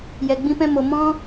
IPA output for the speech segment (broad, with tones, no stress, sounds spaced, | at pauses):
j ɛ˨ ɡ͡b ĩ˧ p ɛ̃˧ m o˨ m ɔ̃˧